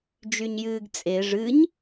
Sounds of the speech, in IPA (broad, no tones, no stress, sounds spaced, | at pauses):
d͡ʒ y ɲ j ɨː ɡ t͡sʼ e ʐ ɨ ɲ